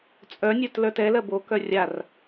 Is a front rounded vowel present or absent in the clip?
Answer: present